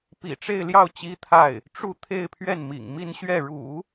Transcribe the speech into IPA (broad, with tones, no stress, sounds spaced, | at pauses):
p ḭ˨˩ ʈ͡ʂ e˥˧ ɪ̯ l j ɑ˥˩ ʊ̯ t͡ɕ i˥ t̪ʰ a˥˩ ɪ̯ | ʈ͡ʂ u˥˧ t̪ʰ e˥˧ ɪ̯ pʰ ɥ ɛ˥˩ n m ḭ˨˩ ŋ m i˥˧ n ɕ ɥ ɛ˥˩ ɻ ṵ˨˩˦